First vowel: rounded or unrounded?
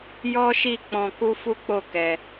rounded